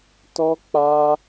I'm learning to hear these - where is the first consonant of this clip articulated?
tongue tip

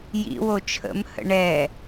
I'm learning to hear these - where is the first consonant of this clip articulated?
palate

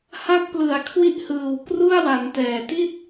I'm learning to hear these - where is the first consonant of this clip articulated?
throat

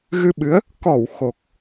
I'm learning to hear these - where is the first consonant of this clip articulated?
velum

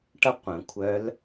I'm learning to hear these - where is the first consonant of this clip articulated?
retroflex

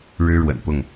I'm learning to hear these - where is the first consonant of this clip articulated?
retroflex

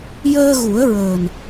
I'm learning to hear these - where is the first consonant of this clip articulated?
palate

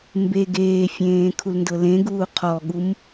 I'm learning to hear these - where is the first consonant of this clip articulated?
lips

